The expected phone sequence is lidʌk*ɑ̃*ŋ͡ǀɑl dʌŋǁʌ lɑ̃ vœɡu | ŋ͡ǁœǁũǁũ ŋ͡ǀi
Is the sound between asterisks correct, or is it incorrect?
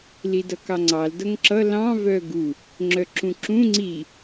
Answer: incorrect